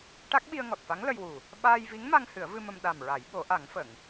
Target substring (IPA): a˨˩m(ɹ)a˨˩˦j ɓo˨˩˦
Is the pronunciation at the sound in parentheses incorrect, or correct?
correct